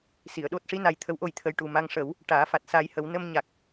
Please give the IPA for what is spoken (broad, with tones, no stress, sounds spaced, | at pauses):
s i˨˩˨ ə̯ ɗ o˦˥ t̚ ʂ i˧˥ n a˧ j t̪ʰ ə˧˥ w ʔ o˧ j t̪ʰ ə˧ j ʈ u˨˩ m a˧ ŋ ʂ ə˨˩˦ w | ʈ aː˨˩˦ f a˨˩ t̚ s aː˧ j h ə˨˩˦ w n ə˧ m ɲ a˨˩ k̚